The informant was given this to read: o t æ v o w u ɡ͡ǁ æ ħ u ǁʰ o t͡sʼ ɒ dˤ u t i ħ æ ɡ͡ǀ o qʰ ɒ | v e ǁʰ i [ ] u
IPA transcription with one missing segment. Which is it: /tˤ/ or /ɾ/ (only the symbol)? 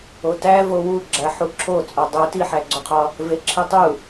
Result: tˤ